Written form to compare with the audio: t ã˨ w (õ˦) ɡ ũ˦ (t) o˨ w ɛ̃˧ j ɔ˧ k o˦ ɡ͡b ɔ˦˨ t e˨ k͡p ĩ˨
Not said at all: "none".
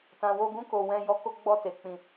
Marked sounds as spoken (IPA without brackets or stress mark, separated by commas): o˦, k